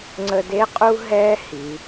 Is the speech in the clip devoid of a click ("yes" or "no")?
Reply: no